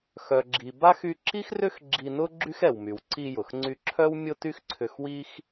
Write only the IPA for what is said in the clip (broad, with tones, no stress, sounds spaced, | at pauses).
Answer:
x œ˩ ɡ͡ǁ i˩ b a˥ x y˧ ǁ i˥ x r ʏ˥ x ɡ͡ǁ i˧ n ʊ˥ ɡ͡ǁ y˥ x ɛ˩ w m y˩ w ǀ i˧ j ʊ˩ x ŋ͡ǀ y˧ ǁʰ œ˥ w mʲ ʊ˥ t y˥ x ǀʰ ʏ˧ x w i˥ x